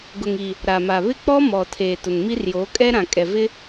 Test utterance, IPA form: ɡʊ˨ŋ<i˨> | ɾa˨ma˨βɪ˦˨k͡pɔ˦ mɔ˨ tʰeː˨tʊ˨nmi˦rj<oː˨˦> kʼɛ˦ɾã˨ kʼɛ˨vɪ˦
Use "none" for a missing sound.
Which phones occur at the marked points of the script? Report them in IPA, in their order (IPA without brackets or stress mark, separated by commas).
i˨, oː˨˦